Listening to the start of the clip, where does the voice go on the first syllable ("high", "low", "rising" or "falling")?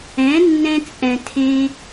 rising